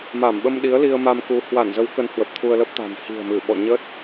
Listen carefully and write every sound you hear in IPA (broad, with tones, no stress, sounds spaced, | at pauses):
m a˧˩ m ɓ ə˧ m ɗ i˨˦ ə̯ l i˧ ə̯ m a˧ m k u˨˦ h w a˧˩ n z ə˨˦ w k ə˨˦ n h w ə˨˩ p̚ t̪ʰ u˧ ə̯ l ə˦˥ p̚ t̪ a̤˨˩ n h i̤˨˩ ə̯ m ɨ˧˩ ɓ ɔ̰˧˨ ɲ ə˦˥ t̚